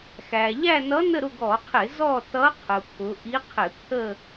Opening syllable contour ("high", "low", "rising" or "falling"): low